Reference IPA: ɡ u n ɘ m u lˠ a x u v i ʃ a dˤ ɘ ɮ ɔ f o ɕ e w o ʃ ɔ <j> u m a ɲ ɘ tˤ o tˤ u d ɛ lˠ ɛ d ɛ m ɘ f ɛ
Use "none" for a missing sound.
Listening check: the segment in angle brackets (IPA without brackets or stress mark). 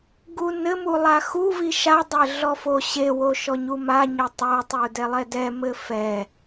ɲ